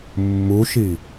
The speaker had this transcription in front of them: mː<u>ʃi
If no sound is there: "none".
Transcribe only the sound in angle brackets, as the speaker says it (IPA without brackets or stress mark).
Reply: u